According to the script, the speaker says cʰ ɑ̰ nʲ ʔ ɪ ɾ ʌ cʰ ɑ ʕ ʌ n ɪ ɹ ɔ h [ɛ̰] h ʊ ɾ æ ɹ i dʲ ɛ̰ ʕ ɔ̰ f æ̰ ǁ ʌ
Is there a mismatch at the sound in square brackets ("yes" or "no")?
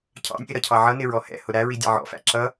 no